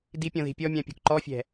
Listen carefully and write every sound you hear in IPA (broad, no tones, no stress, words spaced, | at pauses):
dipʲɔ̃ði̤ pʲɔmʲãpʲo̤k ǃɔfʲɛ̤